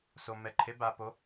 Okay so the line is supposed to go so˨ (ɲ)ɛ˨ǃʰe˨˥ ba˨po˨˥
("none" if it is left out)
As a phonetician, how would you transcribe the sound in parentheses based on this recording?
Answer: m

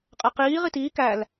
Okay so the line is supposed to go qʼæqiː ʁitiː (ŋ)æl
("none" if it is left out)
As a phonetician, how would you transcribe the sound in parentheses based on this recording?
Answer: k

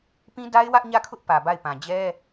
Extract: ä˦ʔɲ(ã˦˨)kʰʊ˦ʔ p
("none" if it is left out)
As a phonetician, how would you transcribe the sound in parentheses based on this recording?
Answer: ä˦˨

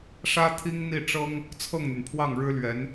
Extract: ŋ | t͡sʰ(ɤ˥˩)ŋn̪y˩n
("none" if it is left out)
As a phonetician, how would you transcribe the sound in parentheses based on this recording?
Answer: ɤ˥˩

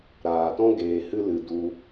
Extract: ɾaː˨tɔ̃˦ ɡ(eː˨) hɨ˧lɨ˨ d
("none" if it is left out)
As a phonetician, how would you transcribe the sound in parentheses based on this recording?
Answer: eː˧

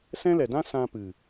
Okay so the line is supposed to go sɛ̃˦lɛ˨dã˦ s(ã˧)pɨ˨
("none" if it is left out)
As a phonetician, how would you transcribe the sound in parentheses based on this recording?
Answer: ã˧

